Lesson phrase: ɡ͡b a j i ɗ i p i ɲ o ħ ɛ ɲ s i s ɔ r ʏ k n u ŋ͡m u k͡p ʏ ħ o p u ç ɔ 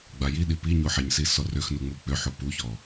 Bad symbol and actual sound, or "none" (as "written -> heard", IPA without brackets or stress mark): k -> x